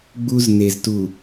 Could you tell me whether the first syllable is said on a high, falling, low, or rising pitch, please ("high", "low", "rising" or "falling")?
high